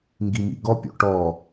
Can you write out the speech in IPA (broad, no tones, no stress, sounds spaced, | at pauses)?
ŋ ɡ i m ḭ ɡ ɔ pʲ o̰ ʈ ɔ